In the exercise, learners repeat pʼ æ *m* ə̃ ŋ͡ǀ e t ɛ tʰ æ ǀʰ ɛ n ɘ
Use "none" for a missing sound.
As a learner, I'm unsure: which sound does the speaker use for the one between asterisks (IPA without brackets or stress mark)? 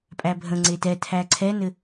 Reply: bʱ